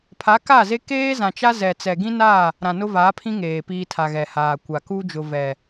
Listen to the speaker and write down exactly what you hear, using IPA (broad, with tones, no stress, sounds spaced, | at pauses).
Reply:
pʰ a˨˦ k a˦˨ z e˦ k eː˦ z ã˨ t͡ʃ a˦ z ɛ˨ t͡s ɛ˨ ɡ ĩ˦ n a˦˨ | ɾ ã˨ n ʊ˦ v aː˨˦ pʰ ĩ˦ ŋ eː˨ p iː˦ tʰ a˨ ɣ ɛ˨ h aː˨ kʷ a˨ k u˦ d͡ʒ ʊ˨ v ɛ˨